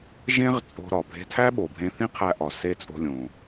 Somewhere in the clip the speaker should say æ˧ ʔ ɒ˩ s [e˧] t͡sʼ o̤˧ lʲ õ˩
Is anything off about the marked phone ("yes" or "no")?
no